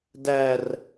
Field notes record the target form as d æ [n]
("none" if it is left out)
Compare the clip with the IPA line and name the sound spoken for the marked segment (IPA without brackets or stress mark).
r